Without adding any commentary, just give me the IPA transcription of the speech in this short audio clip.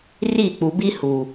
ri˦˨ k͡pu˨bi˦ hu˨

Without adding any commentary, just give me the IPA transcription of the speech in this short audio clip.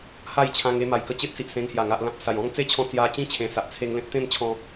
ha˥˧jt͡ɕʰã˧ŋ e˧ma˨˩jkə˧t͡ɕe˦p̚ si˨ʔsẽ˧ŋhja˨˩ ŋa˨ʔlã˨p̚ sa˨˩jɔ̃˥˧ŋ t͡se˦t͡ɕʰɔ̃˧ t͡sja˧ t͡ɕĩ˦t͡ɕʰẽ˨˩sa˨ʔ t͡sʰe˧ŋlẽ˦t̚t̪ẽ˥˧mt͡ɕʰɔ̃˧

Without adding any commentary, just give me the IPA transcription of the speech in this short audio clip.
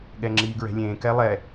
ɠɛŋ͡ǁiːɡɹɛ̤lʲẽː kɛlˠɛ

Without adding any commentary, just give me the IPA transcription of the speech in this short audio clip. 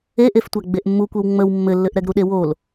eʔeftʷæ ɡ͡beʔmːukʷew ŋ͡məw mːɘlːɘʔɾɛɡ ɾuɗewol

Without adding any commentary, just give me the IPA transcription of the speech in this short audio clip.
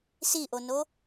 siʔono

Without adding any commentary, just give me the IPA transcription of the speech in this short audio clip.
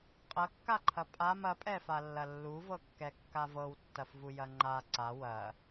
qʼɐkːaǃʰɐ pʼam ɐpʼɛfalːɐ lːuvɤkːɛkːa vɤwtːɐfvujɐ ŋ͡ǃa ǀa wɐ

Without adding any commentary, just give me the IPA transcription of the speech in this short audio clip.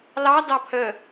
lɑ dɑpʰə

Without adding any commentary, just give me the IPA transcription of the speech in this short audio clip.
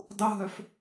dˤuɦœf

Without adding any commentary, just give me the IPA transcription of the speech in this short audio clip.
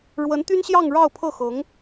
ɻwə˧˥nt̪y˥nɕjɑ˥˧ŋ ɻɑ˥˧ʊ̯pʰɤ˥˩xɤ˧˥ŋ

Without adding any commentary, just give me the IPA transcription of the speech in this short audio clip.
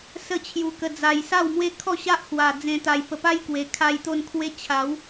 sə˥˧t͡ɕʰju˧kə˧d͡za˧j sa˥˧wmwe˦kʰɔ˥˧ ɕa˦ʔhwa˨˩ d͡zẽ˧t̪a˧jpə˧ pa˦jkwe˨˩kʰa˧j t̪o˥˧nkʰwe˦ t͡ɕʰa˨˦w

